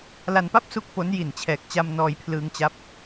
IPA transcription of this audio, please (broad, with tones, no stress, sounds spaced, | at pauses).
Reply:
l a˧ n p a˥˩ p̚ s u˥˩ k̚ p o˦˥ n j i˨˩ n t͡ɕʰ ɛː˨˩ k̚ t͡ɕ a˧ m n ɔː˧ j pʰ l ɯː˧ ŋ t͡ɕ a˦˥ p̚